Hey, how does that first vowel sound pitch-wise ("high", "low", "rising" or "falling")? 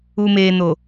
low